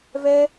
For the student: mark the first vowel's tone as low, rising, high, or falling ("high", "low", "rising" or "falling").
high